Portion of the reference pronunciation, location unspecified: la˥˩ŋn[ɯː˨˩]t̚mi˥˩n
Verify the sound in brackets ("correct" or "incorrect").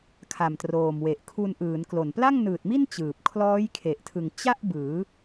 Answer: correct